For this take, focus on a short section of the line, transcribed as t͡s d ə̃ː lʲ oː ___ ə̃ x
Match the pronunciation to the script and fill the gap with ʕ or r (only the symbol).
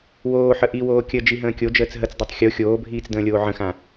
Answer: ʕ